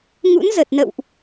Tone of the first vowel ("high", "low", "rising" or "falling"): rising